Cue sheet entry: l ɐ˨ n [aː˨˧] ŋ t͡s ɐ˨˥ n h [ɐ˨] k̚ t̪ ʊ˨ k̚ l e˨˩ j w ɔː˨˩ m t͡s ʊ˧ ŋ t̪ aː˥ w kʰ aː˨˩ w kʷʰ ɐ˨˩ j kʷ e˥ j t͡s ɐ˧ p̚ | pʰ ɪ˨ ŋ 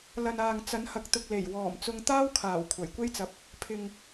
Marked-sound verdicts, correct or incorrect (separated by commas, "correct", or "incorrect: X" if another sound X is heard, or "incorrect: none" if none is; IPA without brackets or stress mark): incorrect: aː˨, correct